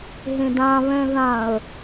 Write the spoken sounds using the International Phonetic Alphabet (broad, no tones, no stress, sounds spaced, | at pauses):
ɦ ẽ d ã β ɛ̃ ð ã ə̯